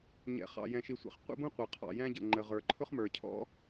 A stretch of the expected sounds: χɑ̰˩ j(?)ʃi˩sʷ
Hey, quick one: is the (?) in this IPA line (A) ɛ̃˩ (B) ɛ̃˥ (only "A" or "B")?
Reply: A